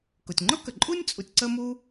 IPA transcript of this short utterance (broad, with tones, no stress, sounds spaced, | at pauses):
k ʊ˩ tʲ ŋ͡ǃ ʊ˥ k ə˩ ǃʼ u˥ nʲ t͡sʼ u˧ tʲ ǀ ə˥ m u˥